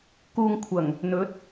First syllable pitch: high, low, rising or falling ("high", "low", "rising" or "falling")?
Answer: low